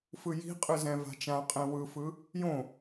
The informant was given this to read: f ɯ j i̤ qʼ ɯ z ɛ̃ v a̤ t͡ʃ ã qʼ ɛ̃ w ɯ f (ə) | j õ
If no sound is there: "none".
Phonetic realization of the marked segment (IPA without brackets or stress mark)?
ɯ